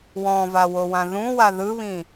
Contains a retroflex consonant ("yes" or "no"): no